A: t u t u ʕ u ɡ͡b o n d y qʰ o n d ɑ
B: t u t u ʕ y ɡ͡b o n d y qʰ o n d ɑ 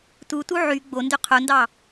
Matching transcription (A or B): B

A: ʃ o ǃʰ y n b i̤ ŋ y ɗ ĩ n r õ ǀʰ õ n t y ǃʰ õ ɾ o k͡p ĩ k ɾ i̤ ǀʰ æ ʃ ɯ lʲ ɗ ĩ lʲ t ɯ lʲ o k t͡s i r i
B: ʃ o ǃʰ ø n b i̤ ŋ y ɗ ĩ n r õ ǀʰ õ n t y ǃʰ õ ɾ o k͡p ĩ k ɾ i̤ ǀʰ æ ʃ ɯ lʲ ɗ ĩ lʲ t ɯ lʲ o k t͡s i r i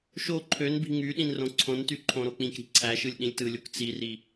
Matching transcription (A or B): B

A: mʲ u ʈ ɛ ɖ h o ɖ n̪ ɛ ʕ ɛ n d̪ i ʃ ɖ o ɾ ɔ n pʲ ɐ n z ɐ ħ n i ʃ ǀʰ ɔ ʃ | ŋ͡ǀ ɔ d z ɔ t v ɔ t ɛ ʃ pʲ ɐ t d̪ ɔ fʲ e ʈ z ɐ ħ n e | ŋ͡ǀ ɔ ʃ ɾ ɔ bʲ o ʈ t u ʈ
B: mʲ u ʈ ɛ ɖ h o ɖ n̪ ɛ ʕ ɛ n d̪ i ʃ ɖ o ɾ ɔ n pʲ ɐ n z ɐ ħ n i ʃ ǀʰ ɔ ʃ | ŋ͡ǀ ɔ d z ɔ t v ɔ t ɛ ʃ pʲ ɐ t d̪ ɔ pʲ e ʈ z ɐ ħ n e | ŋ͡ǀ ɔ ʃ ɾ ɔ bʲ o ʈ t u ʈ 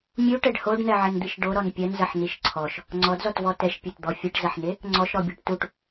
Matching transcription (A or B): A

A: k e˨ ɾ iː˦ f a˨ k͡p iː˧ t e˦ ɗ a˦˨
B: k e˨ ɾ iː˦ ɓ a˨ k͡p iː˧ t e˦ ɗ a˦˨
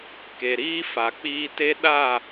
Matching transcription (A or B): A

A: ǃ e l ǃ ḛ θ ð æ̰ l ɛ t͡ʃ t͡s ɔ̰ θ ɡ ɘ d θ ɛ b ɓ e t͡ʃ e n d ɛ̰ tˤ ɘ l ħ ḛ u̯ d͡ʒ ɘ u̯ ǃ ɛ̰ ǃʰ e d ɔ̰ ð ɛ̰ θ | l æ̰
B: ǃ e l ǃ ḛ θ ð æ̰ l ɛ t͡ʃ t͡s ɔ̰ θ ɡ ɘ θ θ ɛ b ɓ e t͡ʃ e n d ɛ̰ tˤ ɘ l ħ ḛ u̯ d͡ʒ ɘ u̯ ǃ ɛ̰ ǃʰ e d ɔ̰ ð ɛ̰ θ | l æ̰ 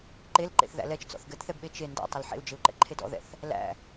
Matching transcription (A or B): A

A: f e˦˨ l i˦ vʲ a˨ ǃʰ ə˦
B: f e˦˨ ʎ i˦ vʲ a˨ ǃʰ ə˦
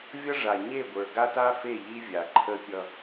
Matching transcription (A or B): B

